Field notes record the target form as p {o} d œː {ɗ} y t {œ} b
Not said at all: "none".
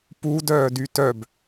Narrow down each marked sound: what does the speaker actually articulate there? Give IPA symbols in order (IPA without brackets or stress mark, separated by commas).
u, d, œ